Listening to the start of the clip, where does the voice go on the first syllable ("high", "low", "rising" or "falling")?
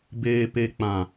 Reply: low